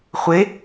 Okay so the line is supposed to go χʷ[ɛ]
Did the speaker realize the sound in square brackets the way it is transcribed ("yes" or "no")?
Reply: no